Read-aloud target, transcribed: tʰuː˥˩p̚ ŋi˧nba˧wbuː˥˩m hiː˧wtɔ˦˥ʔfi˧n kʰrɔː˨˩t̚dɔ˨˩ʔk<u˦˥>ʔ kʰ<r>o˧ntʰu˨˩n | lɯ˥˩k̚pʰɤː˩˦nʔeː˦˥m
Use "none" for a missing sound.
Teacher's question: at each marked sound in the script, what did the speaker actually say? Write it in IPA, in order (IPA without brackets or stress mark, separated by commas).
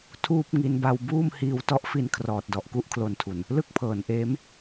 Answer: u˦˥, l